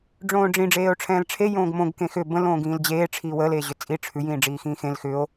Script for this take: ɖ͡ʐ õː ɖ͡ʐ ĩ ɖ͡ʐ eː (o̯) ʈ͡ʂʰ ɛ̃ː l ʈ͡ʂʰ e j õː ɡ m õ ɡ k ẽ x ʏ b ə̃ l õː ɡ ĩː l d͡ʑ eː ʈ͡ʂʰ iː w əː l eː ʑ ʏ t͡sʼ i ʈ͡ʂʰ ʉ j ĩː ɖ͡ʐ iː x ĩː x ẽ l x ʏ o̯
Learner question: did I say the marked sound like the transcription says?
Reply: yes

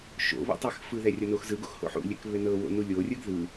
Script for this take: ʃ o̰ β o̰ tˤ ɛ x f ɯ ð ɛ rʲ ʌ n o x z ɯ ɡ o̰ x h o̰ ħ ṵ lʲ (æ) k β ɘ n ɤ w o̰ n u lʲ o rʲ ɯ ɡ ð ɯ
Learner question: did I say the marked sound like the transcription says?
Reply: no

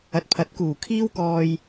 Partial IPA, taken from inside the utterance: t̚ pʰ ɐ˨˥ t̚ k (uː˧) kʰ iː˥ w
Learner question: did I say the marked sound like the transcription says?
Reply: no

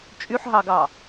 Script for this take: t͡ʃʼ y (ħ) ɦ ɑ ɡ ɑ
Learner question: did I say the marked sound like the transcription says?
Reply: yes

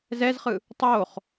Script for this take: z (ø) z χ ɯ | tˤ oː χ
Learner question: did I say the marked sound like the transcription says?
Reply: no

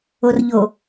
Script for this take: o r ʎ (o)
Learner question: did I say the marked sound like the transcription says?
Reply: yes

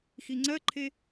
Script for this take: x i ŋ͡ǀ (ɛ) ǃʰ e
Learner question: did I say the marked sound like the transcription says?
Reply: no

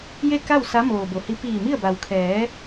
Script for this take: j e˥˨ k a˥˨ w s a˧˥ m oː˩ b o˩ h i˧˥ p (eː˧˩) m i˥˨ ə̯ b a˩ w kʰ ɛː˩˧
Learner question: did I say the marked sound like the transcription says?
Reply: no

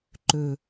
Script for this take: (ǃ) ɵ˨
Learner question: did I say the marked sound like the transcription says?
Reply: yes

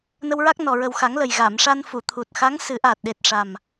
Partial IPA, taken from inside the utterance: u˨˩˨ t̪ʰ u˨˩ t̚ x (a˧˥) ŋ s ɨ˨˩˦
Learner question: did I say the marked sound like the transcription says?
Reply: yes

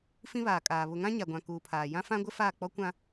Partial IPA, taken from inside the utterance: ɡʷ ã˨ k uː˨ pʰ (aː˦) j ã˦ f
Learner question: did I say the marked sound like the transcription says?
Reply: no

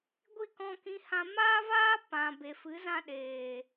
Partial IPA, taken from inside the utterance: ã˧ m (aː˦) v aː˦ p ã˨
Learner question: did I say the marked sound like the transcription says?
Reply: yes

